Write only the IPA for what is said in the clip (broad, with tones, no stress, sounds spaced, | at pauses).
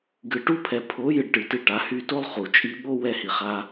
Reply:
ɡ ɨ˨ ʈ u˦ pʰ ɛ˨ pʰ o˨˦ j ɨ˧ ɖ ʈ ɨ˨ t i˧ ʈ a˨˦ h y˧ t o˦ lˠ χ u˨ t͡ʃʼ i˧ ɓ o˦ w ɛ˧ h i˨ χ a˧